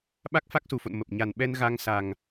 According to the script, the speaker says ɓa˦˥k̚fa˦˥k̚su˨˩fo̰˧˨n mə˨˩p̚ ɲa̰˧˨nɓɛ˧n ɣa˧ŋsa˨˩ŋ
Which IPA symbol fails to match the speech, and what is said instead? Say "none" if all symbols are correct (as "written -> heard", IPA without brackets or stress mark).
a̰˧˨ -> a˨˩